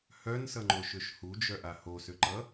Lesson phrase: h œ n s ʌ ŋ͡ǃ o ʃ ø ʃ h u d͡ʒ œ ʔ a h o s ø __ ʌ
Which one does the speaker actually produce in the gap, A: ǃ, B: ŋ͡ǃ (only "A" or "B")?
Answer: A